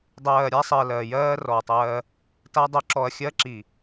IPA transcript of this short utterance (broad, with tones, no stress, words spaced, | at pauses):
dˤɜː˨ɾʲa˦ sˤɜ˨lɜ˨jɜː˦ rɔ˨tˤɜː˦ | ta˦dˤo˦ ǁɔ˨ɐ̯xʲɜ˦ǁi˨